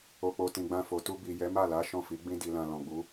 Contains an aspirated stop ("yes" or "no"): no